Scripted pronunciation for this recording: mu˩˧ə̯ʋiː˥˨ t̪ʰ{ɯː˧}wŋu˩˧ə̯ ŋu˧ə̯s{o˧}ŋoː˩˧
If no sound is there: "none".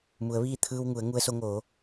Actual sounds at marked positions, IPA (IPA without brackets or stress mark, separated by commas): ɯː˧, o˧